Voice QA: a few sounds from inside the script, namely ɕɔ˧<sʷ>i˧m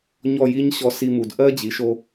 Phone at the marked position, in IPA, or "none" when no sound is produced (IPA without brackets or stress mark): s